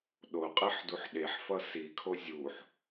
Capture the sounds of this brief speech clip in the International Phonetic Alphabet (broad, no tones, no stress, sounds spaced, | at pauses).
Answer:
ɗ o qʼ e ħ d u ħ ɗ e ħ f ʌ s i kʰ o zʲ u ħ